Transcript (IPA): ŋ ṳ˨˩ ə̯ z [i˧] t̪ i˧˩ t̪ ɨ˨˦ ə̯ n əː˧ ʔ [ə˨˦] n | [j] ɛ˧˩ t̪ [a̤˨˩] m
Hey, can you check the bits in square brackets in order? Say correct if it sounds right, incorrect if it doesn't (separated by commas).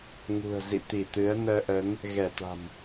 incorrect, correct, incorrect, correct